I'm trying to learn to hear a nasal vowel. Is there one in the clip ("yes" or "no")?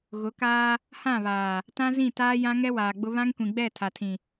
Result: yes